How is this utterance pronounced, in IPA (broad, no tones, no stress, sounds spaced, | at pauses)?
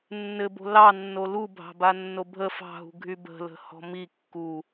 nː ɘ b o̤ l ɑ nː o l u bʱ ɑ̤ b a nː o bʱ ə f ɑ̤ ɦ ṳ ɡʱ y b ə̤ l ə̤ h ɔ̤ m i kː u